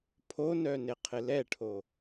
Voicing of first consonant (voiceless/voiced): voiceless